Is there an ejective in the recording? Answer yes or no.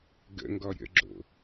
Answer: no